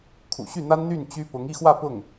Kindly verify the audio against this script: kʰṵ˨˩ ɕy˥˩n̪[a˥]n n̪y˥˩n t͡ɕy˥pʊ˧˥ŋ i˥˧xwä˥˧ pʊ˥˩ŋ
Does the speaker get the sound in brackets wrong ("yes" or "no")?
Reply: no